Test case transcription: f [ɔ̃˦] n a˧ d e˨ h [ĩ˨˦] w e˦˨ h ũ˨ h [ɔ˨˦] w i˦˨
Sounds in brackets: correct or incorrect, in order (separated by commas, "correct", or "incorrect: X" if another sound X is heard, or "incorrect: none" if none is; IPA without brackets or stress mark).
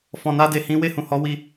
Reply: incorrect: ɔ̃˨, correct, correct